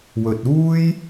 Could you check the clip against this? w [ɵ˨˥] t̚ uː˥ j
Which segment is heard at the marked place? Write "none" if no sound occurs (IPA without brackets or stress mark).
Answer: ɵ˨